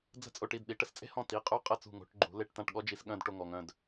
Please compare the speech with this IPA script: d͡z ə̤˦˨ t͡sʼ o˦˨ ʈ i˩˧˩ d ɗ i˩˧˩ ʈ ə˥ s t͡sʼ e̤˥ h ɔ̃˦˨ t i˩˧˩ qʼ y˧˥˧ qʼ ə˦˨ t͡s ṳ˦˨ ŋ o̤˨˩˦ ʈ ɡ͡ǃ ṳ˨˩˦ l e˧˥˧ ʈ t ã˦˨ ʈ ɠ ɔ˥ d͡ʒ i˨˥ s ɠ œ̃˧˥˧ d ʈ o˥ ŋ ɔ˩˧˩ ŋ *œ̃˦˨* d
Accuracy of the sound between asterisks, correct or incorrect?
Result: correct